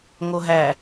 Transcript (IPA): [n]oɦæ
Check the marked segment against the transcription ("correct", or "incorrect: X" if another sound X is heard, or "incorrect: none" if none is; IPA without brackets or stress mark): incorrect: ŋ